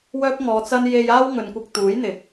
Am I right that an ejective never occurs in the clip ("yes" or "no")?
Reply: yes